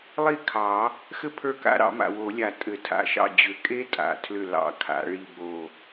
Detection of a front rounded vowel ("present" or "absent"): present